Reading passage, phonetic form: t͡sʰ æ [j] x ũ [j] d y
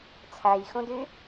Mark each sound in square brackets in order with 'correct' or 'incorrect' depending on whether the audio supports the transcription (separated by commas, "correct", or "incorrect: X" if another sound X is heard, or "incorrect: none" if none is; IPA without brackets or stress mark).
correct, incorrect: none